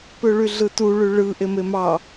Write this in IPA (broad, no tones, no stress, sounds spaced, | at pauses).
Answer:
p ø ɭ y ɮ ɯ t u ɭ y ɭ ɯ ʔ e m e m ɑ